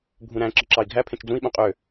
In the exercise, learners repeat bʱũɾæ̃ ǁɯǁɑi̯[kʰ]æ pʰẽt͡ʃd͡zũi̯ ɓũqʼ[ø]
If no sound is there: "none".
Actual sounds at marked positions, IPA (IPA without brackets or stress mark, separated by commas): ɡʱ, ø